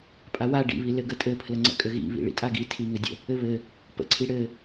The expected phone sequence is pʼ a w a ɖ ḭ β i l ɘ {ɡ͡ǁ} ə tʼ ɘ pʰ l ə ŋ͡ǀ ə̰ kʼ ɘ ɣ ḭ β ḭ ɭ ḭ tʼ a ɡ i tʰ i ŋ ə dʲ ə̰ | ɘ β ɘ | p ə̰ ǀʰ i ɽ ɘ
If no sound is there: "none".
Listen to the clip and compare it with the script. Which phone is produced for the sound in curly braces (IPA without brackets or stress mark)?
ɡ